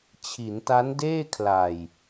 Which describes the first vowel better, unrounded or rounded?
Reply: unrounded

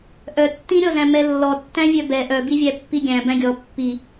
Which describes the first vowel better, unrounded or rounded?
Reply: rounded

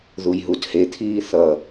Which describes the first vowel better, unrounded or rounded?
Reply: rounded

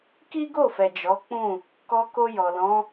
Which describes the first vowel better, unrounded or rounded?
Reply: unrounded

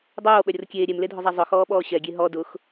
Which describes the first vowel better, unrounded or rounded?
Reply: rounded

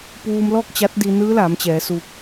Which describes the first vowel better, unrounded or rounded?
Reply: rounded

